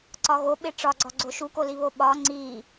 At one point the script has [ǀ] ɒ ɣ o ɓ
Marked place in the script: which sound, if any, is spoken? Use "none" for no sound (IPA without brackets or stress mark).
ǀ